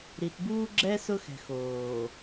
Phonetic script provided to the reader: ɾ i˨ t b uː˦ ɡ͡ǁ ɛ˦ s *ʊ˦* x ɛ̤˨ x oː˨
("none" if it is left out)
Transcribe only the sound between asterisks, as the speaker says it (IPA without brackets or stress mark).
ʊ˦